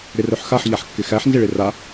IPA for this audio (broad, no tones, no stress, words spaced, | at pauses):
ɾɪrœħxaħ ʎaħkːɪxæħ nzɪɭɪra